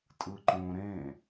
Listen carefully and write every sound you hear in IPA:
tʼ ɯ ǃ õ ɾ ẽ

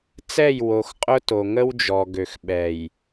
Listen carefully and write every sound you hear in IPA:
t͡s ɛ˦˨ j w o˨ x qʼ ʊ˦ t o˨ ŋ ə˦ w d͡ʒ ɔ˨ ɡ ø˨ x ɓ ɛ˨ j

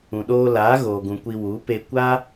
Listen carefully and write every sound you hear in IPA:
ũ˨ ɗ oː˧ l aː˨˦ ɣ oː˨ ɡ ũ˨ kʷ i˧ w u˨˦ p e˧ kʷ aː˦

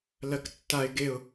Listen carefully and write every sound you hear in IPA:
l ɜ k tː a ɪ̯ ɡ e ʊ̯

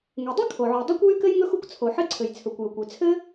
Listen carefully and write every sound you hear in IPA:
ŋ e˩ dˤ ɘ˥ kʰ o˩ ʕ u˩ dˤ e˥ kʷ w y˥ k ɘ˥ j ŋ ɵ˥ x u˥ kʷ t͡sʰ o˩ ħ ɘ˥ ǀʰ ɘ˩ j t͡sʰ ɵ˩ kʷ j ɵ˩ kʷ y˩ t͡sʰ ɘ˥

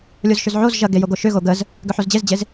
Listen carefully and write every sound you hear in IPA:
lʲ o z ʃ ʏ z ʕ o z ʒ ɐ ɡ e j o ɡ o ʃ ʏ ɣ o ɡ ə z | ɡ ʏ ħ o z d͡ʑ e z d͡ʑ e z

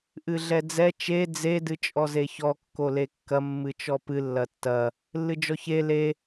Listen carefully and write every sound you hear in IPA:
ʔ ɨ ɮ ɛ d͡z ɛ t͡ʃ e d͡z e d ɨ t͡ʃʼ ɔ z e ç ɔ kː o l e kː ɐ mː ɨ t͡ʃ ɔ p ɨ lː ɐ tː ɐ | lː ɨ d͡ʒ ɔ ç e l e

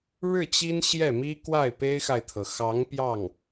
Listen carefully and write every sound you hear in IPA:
ɻ ɻ̩˥˩ t͡ɕ i˥ n ɕ j ɛ˥˩ m i˥ k w a˥˩ ɪ̯ p e˥ ɪ̯ x a˨ ɪ̯ t̪ʰ ɤ˩ x ɑ˧˥ ŋ p j ɑ˥˩ ŋ

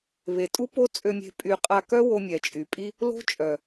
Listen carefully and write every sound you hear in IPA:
β e˨ tʼ u˦ p o˦ t͡sʼ ø˧ mʲ e̤˧ pʼ y˧ qʼ a˧ k œ˦ w o˧ mʲ ɛ˨ t͡ʃʼ y˨ pʼ i˦ | l o̤˦ t͡ʃʼ œ˨

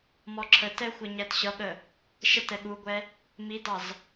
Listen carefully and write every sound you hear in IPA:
m ɔ ǁʰ ə t ɛ xʷ ʌ ɲ æ t ɕ ʌ ɠ ə | ʃ ə t ɛ ɠ u ɡʷ ɛ | m i d ɑ z

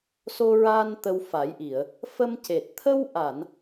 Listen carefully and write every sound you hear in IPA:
s o˧ ɹ aː˧ n t̪ ə˧ w f a˨˩˦ j ʔ i˨˩˨ ə̯ | f ə˧ m c e˨˩ t̚ t̪ʰ ə˧ w ʔ a˨˩˨ n

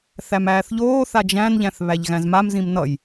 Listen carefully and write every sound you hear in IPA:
θ æ m æː θ ʎ oː θ a d͡ʒ æ̃ n ʎ æ̃ θ β æ ʎ ɣ æ̃ z m a m z ĩ m n ʌ j

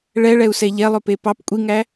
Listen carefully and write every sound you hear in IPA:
ɭ ɛ ɭ ɛ u̯ s ɛ ʎ ɛ lˠ ɵ p e p ɑ p kʷʼ i ŋ æ

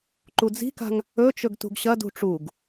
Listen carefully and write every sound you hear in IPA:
ǃ u d͡z i̤ k a̤ ŋ | ɵ t͡ʃ ɵ ɡ t ṳ ɡ ɕ ɐ d ṳ ʈ͡ʂ u ɡ

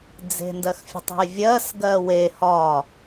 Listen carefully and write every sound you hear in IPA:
d͡z e̤ n d ɜ x fʲ ə̤ tˤ o̤ j vʲ ɜ s ɡ ɜ w e h ɒ

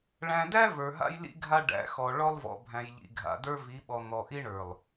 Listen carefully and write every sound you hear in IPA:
ɭ æ̃˨ d æ˦ v ə˞˨ ɦ a̰˦ j l ḭ˦ ɡʱ a˦ ɖ æ̰˨˦ x ɔ˨ ɭ ɔ˦ lˠ v ɔ̰˨ bʱ æ̃˨ j ʎ ḭ˨ ɡʱ a̰˨ d ə˞˦ v i˨˦ ɓ ɔ˨ n̪ ɔ˨ ʔ i˦ ɳ ə˞˨ lˠ

